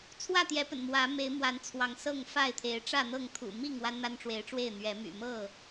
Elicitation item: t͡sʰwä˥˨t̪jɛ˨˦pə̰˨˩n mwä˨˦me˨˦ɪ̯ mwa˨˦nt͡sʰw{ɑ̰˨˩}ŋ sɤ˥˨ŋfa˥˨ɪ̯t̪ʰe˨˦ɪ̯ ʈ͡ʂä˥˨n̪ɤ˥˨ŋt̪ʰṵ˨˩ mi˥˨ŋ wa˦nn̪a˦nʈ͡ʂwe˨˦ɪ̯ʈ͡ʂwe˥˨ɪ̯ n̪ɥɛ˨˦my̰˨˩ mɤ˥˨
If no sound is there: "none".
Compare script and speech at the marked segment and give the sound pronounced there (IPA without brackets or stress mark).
ɑ˨˦